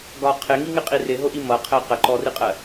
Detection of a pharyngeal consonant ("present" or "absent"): absent